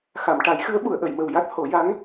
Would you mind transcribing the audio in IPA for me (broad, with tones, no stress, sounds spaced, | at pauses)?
x a˨˩˨ m ʈ a˨˩˦ j x ɨ˧˥ ə̯ ɓ u˨˩˨ ə̯ ʔ ə˨˩˨ j m ə˨˩ w j a˦˥ t̚ h o˨˩˦ j a˧˥ ŋ